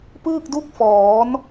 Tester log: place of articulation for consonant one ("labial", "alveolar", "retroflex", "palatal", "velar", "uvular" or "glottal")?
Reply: labial